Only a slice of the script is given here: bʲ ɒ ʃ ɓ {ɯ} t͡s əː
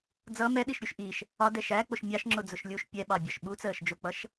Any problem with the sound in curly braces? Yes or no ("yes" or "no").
yes